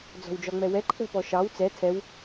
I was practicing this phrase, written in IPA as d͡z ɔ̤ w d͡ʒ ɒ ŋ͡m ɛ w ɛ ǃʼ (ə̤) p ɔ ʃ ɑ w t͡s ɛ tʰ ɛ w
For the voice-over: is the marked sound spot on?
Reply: yes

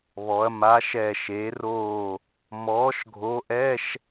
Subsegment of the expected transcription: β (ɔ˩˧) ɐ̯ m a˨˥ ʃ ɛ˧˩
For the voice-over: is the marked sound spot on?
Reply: yes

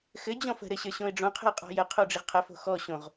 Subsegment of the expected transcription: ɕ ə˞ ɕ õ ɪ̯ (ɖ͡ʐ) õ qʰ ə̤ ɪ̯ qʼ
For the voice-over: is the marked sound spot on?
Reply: yes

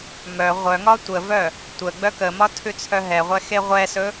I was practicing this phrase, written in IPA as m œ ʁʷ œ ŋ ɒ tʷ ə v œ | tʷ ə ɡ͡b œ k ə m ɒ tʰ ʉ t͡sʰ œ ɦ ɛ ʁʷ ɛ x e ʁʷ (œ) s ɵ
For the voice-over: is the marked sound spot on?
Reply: no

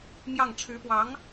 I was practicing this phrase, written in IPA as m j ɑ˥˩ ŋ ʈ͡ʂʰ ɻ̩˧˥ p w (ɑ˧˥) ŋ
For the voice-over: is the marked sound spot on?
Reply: yes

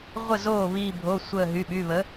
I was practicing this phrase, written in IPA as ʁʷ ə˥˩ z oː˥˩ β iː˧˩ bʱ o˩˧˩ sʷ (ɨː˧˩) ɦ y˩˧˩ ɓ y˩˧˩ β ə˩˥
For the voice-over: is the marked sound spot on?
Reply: no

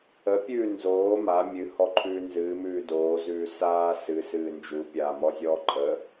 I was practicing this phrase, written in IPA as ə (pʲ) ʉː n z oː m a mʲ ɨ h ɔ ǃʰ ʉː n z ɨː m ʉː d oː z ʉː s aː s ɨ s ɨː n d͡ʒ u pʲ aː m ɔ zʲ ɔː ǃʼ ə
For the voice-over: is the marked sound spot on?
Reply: yes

